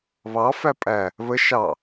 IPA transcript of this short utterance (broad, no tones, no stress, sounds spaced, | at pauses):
β ɑ f æ pʼ æ | β ə ʃ ɑ